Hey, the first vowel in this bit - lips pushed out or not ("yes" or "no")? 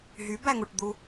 yes